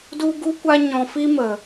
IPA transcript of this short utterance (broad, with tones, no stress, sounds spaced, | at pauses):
d u˦ ɡ u˦ kʷ a˦ ɲ ɔ̃˧ f i˦ m ə˧